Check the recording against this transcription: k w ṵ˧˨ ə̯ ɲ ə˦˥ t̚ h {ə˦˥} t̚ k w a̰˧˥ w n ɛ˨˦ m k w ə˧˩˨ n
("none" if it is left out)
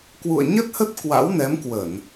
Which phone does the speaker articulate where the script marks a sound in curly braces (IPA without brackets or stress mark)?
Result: ə˦˥